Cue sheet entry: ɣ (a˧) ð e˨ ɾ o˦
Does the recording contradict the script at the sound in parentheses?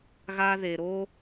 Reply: no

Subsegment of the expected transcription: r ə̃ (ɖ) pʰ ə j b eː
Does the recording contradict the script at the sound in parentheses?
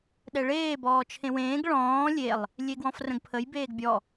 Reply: yes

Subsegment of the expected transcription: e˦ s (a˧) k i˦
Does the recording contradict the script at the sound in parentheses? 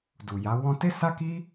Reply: yes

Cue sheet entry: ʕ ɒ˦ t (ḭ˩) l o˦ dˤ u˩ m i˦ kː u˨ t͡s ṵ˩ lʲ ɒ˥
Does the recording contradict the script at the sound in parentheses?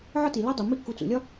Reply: yes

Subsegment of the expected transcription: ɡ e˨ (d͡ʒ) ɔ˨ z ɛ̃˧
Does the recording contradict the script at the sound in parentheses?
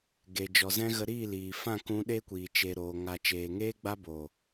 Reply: no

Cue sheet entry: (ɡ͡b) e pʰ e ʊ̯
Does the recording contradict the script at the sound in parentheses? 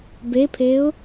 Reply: yes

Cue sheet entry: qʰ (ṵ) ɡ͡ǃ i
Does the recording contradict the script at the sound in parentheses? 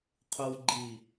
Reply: yes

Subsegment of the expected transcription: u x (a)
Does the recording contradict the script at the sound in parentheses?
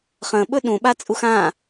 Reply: yes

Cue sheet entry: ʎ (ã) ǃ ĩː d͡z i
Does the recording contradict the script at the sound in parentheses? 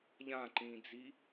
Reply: no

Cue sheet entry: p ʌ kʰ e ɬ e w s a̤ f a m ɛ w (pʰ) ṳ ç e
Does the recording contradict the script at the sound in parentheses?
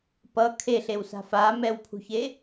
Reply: no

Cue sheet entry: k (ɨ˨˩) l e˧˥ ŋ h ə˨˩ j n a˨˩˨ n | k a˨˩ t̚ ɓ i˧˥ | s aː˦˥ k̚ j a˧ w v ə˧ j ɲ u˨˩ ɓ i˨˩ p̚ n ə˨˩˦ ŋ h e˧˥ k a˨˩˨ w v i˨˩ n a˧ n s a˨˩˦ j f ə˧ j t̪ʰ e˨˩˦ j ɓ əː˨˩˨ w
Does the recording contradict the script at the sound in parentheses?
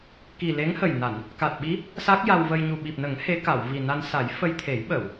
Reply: yes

